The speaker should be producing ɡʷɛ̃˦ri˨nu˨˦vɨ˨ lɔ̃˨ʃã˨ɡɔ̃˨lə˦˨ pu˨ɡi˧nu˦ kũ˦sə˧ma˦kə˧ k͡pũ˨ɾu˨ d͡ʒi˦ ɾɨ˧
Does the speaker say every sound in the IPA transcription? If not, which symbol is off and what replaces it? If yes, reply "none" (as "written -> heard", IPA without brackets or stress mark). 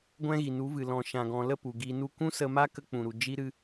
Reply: r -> ɣ